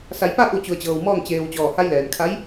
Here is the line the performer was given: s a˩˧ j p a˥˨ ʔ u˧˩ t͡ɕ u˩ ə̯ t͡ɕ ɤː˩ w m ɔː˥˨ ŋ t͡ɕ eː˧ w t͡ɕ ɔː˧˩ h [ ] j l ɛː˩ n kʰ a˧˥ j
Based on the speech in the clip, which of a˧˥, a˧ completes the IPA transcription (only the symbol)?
a˧